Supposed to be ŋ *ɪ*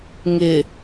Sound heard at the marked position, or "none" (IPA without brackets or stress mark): ɪ